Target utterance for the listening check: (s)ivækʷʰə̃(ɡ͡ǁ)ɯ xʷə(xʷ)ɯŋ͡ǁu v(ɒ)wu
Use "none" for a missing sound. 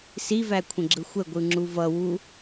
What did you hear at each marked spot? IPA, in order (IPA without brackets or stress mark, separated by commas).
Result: s, ɡ͡ǁ, ɡʷ, ʌ